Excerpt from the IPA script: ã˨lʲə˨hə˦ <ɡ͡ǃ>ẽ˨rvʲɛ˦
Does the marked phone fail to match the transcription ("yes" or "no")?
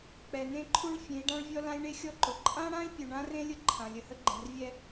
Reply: no